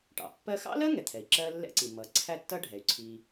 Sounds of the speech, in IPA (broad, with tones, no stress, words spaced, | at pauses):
ʈɑ̰˩pːɜ˥ xɑ̰˥lɜ˥ ŋɛ˩t̪ʰɛ˩i̯ ǁɜ˥lːɛ̰˥ǀi˩ mʌ˩ ǀʰæ˥tːʌ˥ɖʱɛ˩y̯ ǀʰi˩